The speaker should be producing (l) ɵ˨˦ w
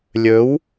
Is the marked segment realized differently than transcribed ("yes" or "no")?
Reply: yes